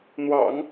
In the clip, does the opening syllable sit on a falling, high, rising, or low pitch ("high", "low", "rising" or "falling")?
low